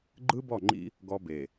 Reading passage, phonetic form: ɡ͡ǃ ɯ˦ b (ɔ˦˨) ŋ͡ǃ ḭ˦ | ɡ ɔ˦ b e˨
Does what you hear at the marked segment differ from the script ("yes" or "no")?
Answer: no